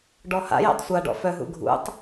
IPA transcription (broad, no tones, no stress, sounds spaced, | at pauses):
ɖ ɔ h a̰ j a̰ tˤ sʷ a ɖ ɔ̰ f œ ɦ ṵ ɡʱ ṵ tˤ